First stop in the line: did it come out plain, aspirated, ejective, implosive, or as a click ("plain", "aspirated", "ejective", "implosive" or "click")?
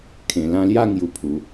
aspirated